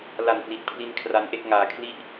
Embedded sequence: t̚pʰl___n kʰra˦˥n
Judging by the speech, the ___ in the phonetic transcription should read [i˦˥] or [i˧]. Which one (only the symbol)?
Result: i˧